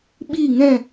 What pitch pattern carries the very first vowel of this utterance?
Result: falling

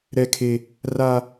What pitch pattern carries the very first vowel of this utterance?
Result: high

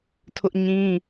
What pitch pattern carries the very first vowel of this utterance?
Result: high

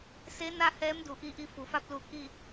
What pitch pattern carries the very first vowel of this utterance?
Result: rising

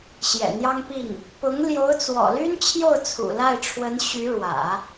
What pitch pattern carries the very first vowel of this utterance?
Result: low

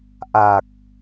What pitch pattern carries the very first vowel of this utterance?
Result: low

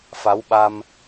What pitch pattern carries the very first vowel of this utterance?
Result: rising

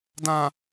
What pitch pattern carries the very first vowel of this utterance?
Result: low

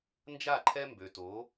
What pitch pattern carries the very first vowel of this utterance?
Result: falling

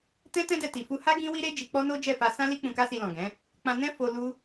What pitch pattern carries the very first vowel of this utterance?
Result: high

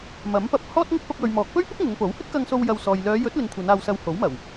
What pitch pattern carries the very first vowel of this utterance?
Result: rising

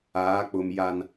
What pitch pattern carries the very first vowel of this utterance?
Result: rising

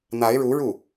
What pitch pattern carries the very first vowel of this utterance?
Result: rising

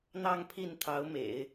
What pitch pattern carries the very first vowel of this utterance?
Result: falling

